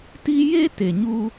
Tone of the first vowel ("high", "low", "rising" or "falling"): high